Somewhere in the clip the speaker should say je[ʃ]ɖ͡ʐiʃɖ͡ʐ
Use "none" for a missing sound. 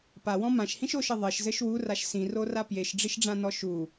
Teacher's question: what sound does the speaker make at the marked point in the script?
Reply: ʃ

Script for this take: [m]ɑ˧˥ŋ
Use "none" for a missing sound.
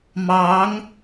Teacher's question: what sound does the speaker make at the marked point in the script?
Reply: m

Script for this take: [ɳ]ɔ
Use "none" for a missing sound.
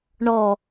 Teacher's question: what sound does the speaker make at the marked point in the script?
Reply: ɳ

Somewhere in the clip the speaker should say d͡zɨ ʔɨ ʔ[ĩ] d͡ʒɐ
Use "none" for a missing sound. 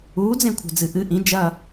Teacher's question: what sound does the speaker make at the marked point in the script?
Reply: ĩ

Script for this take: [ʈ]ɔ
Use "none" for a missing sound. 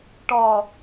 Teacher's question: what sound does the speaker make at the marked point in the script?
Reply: ʈ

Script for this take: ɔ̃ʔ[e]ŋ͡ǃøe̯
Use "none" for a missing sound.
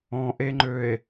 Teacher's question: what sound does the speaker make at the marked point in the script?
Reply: e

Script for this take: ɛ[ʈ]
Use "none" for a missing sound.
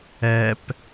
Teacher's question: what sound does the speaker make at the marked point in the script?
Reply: p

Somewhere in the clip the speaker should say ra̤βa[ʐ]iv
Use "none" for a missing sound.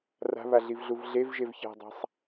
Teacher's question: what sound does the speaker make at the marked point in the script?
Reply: ɮ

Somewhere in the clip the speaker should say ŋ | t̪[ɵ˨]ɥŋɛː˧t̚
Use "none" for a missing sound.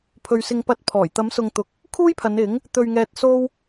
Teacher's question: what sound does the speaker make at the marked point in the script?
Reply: ɵ˧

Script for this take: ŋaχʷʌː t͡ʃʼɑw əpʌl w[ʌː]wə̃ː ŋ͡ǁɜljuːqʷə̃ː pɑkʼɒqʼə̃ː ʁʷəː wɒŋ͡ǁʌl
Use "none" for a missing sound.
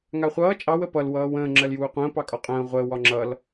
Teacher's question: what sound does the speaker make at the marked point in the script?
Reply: ʌː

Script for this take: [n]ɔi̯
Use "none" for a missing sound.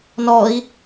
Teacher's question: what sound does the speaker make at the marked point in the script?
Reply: n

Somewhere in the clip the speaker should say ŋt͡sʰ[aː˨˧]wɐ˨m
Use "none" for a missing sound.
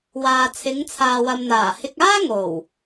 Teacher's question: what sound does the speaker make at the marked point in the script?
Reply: aː˨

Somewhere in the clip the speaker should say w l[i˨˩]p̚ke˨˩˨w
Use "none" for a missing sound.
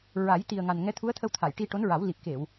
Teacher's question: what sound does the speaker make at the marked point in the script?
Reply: i˨˩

